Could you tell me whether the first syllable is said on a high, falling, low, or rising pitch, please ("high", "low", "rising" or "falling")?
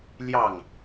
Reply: falling